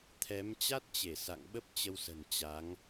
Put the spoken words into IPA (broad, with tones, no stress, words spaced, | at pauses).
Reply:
t̪ʰɛ˨˦m t͡ɕa˦˥t̚t͡ɕe˧˩ sa̰˧˨ŋɓə˦˥p̚ t͡ɕə˧wsə̤˨˩n t͡ɕa˨˦ŋ